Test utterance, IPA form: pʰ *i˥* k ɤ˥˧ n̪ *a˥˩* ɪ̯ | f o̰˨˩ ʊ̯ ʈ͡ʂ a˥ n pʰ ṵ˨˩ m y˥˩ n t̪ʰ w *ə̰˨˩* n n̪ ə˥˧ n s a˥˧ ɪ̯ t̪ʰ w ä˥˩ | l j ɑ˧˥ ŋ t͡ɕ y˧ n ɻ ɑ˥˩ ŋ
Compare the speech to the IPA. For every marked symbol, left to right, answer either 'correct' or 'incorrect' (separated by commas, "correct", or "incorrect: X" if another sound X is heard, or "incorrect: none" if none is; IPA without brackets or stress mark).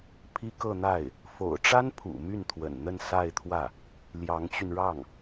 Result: correct, correct, correct